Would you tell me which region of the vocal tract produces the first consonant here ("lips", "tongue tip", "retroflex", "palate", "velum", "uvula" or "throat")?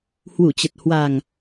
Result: throat